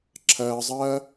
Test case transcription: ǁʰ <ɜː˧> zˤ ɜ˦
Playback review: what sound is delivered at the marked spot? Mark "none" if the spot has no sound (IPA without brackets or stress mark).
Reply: ɜː˧